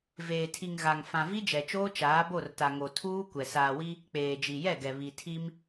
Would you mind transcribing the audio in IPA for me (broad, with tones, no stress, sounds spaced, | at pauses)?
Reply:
v eː˨ tʰ i˨ ŋ ɣ a˨ ŋ f ã˨ v i˦ d͡ʒ ɛ˨ t͡ʃ oː˦ t͡ʃ aː˨˦ b o˦˨ r t a˨ ŋ o˨ tʰ uː˦ kʷ ɛ˨ s aː˨ w i˦ | k͡p eː˨ d͡ʒ i˨ j ɛ˦˨ ɡ ɛ˨ β i˨ tʰ i˦ m